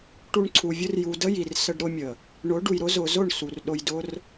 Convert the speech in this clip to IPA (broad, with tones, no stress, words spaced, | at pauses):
ʈu˧ɳǀʰu˨vʲʊ˦r ju˨ də˦ji˨r sə˧ɖɾʊ˦mʲə˨ | ɳʊ˨˦ɖu˨jɾʊ˦ zʊ˨zʊ˦˨ɳ su˨rɗʊ˧j dʊ˦r